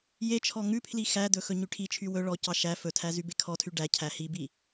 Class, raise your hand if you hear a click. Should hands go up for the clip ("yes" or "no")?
no